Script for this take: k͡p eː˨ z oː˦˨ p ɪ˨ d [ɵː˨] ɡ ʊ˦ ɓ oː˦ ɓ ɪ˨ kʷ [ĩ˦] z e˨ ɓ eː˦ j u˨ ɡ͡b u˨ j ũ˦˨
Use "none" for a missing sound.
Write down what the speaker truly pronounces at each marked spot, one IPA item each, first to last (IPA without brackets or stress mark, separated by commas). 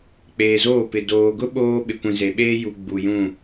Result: oː˨, ĩ˨